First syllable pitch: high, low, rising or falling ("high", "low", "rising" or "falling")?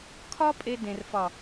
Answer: high